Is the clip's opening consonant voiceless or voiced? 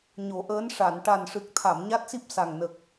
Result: voiced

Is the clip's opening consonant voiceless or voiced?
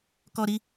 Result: voiceless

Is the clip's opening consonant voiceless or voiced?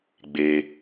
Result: voiced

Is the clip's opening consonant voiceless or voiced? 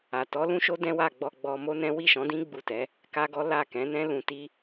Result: voiceless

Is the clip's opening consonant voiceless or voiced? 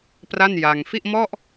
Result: voiceless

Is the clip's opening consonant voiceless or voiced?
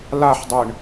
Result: voiced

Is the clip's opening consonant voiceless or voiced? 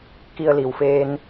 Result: voiceless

